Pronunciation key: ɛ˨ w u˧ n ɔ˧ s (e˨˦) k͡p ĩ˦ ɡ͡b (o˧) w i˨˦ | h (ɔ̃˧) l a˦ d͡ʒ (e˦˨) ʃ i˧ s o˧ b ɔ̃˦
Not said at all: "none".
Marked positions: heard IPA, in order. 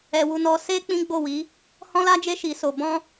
e˦, o˦˨, ɔ̃˦, e˦

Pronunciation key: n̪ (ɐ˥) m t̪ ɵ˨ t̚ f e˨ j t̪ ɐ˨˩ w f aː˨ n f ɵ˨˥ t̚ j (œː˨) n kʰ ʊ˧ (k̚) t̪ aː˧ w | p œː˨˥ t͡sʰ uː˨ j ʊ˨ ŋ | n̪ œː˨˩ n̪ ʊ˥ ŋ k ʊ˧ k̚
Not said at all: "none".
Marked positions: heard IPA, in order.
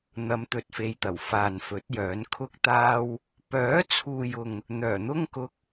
ɐ˨˧, œː˨˥, k̚

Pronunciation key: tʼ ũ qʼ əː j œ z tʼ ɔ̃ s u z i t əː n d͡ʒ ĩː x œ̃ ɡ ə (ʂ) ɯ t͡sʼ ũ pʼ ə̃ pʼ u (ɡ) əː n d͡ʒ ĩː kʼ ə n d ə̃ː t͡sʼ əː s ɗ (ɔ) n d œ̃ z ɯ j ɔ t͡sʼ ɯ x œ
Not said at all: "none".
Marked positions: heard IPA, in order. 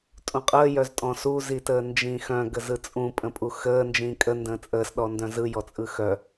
z, x, ɔ

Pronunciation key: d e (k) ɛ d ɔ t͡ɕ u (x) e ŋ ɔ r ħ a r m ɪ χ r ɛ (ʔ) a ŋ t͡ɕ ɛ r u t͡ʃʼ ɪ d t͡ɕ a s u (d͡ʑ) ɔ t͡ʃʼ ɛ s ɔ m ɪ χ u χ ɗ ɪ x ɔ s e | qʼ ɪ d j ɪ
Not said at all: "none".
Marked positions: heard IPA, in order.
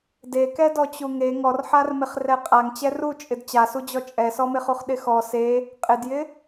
k, ŋ, qʼ, d͡ʑ

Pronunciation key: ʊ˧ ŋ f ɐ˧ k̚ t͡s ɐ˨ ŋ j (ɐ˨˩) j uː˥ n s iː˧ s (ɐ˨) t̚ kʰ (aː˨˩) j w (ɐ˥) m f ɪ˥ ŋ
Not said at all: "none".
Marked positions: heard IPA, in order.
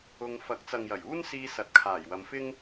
ɐ˨˩, ɐ˨, aː˨˩, ɐ˨˧

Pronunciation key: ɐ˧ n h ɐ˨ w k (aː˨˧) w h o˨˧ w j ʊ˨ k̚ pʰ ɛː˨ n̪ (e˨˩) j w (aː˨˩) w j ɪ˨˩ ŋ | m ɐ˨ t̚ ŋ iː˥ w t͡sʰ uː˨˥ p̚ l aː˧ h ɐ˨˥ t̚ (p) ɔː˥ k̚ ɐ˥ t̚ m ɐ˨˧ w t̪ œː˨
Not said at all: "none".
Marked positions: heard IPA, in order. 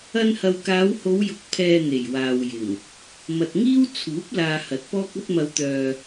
aː˨˧, e˨˩, aː˨, p

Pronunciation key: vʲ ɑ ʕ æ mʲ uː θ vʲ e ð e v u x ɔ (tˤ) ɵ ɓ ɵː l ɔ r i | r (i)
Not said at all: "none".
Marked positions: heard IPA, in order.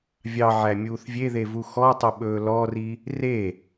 tˤ, e

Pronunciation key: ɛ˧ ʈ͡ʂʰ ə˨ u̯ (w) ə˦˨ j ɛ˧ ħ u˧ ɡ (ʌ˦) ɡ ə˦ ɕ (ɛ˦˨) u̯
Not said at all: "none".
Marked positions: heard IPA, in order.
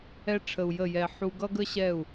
j, ʌ˦, ɛ˦˨

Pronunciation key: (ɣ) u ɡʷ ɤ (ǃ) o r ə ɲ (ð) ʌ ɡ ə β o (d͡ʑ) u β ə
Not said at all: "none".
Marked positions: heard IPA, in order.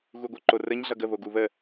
ɣ, ǃ, ɮ, ɡ

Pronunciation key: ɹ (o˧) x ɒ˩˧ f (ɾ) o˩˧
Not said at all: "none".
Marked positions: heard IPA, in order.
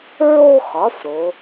o˧, ɾ

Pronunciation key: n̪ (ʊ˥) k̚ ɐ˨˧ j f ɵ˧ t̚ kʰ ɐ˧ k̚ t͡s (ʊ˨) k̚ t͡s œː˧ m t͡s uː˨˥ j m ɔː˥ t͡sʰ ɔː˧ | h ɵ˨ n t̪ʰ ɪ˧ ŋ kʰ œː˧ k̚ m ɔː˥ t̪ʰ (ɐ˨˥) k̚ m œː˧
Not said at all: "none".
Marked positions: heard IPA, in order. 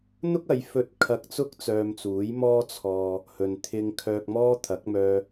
ʊ˥, ʊ˥, ɐ˨˥

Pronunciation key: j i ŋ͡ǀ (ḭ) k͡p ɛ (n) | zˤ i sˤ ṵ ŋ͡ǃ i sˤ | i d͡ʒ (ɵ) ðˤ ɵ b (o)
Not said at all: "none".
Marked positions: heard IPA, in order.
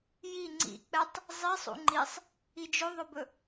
ḭ, tˤ, ɵ, ɵ

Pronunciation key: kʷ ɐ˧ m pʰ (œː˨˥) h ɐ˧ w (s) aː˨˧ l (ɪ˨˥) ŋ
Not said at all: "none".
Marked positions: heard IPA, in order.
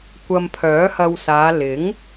œː˨˥, s, ɪ˨˥

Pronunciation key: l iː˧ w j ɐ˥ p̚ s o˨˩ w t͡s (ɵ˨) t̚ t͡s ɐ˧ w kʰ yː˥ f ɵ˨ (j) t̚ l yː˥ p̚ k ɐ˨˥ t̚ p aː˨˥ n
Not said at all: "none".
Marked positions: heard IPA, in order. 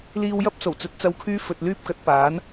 ɵ˨, none

